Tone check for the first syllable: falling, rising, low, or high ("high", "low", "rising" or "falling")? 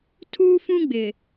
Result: high